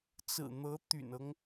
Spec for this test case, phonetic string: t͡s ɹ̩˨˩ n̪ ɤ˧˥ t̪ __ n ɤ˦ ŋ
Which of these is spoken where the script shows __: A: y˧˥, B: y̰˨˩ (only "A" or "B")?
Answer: B